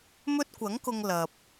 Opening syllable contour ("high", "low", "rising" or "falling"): high